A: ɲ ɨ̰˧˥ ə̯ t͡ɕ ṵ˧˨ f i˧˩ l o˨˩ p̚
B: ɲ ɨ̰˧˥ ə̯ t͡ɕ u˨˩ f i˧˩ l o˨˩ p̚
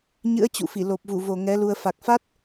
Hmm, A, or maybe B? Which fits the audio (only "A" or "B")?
A